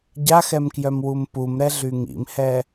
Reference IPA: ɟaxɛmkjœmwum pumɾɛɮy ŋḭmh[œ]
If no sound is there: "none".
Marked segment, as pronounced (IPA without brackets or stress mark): ɛ